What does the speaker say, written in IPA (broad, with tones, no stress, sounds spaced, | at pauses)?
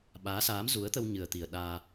ɓ aː˨˦ s aː˨˦ m z u˨˦ ə̯ t̪ ə˧ w ɲ ɨ˨˩ ə̯ t̪ i˨˩ ə̯ ɗ aː˧